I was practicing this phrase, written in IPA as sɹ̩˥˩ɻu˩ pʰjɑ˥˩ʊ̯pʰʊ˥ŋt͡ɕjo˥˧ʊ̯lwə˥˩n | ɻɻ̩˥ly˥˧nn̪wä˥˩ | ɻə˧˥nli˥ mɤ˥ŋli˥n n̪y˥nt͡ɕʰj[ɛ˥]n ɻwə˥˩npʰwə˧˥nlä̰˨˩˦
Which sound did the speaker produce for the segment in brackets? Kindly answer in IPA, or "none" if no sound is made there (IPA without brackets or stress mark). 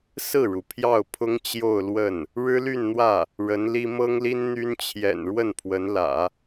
ɛ̰˨˩